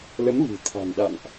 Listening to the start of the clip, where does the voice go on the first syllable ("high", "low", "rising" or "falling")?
rising